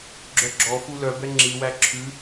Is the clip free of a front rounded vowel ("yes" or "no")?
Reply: no